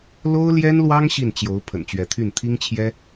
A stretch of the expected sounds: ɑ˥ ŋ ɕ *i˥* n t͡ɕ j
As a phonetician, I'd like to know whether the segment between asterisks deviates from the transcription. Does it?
yes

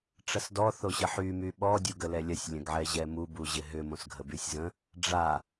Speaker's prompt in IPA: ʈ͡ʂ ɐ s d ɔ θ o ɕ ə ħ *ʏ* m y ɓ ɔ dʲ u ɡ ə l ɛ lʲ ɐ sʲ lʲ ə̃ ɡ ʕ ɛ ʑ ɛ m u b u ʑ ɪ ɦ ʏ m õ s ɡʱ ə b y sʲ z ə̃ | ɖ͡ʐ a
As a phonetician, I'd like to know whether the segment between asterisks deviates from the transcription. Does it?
yes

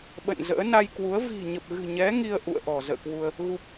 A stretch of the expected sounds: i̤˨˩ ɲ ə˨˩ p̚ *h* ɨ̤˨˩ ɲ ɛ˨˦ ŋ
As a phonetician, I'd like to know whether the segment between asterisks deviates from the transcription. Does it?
yes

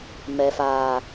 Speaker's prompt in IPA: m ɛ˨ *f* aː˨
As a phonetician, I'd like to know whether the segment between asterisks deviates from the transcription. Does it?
no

